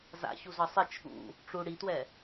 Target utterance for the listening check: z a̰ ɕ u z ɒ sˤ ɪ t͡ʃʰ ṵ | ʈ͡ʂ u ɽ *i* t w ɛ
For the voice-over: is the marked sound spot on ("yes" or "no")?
yes